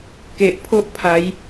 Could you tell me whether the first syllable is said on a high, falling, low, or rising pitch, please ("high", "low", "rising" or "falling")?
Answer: low